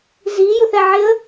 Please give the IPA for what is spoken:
zijʊθɛʕɪə̯

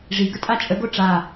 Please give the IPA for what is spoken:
ʐiɡətʼa t͡ʃʼəɡo ʈ͡ʂa

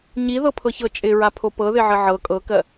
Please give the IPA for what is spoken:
ɲiðɤpʰɤçɤ t͡ʃʼɪɹapʰo pɤðɪʕə ʕɤ kʼɤkɜ

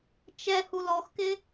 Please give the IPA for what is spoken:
t͡ʃɛ hulɔxkɪ

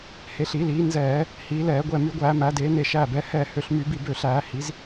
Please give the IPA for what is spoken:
he˩˧ɬi˧˩˧liː˩˧ nzɛː˧˩˧ | hiː˩˧lɛː˧˩˧ɡʷɛ˧˩ my˧˩˧ɡʷæː˧˩˧mæ˩˧deː˩˧ ne˧˩ʃæː˧˩bɛː˩˧ hɛː˧˩hø˧˩ɬmy˧˩˧bi˧˩ bø˧˩ɬæː˧˩˧ hi˩˧z

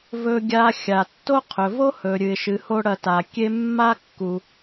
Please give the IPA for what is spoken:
vɵ˧ɡʲa˧ xʲa˩tːo˥qʰɵ˩ vo˥hɵ˩ɾʲɨ˩ɪ̯ ʃɨ˩ho˧ ɽɐ˧ta˩kʲe˥ mːa˥kːu˩

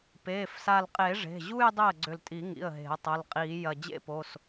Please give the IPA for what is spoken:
peː˩˧˩fsa˧˩lqʼe˨˩˦ ʐe̤˩˧˩ʑu˥˧j dˤe˥˩ə̯ɡ͡ǀʏ˧˩ltʼi˨˩˦ŋḭ˩˧˩ə̯ ɦe̤˨˩˦ə̯ tˤɐ˩˧˩lqʼiː˨˩˦ jɐ˧˩ d͡ʑḛ˥˧ po˩˧˩s

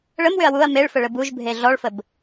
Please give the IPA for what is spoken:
ɭəmwʏɐ̯ wuɐ̯ meɭfə ɭəbuʒbʱe ɮɔɭfəb

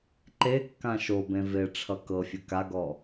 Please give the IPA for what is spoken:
ǃe kːãʃobẽ ve ʈ͡ʂʰʌkɤfʲɘ kaɡɔ

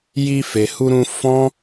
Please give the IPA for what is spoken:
ji˧ fe˨hu˧ɾũ˧ fɔ̃˦

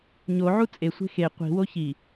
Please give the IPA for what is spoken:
ɲoʕu t͡sʼesʷe̤ xe qʷi̤wo çi

